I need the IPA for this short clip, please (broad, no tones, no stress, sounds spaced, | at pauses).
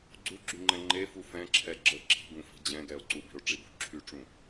ɡ͡ǀ u ɡ͡ǁ y ŋ͡ǃ ɛ̃ ŋ͡ǃ e f u f ɛ̃ ǁʰ ɛ ɡ͡ǁ ə ǁ i̤ ɡ ũ f i̤ d͡ʑ ɛ̃ ɡ ɛ o̯ ǀ u b i̤ o̯ ʈ͡ʂ i b ṳ ǁʰ y ʈ͡ʂ ũ